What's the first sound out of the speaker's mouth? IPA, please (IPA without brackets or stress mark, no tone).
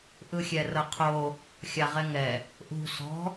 ʔ